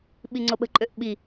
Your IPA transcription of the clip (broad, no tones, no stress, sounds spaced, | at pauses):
ɓ i ŋ͡ǀ o ɓ ə̤ ǃʼ ø ʔ ɓ i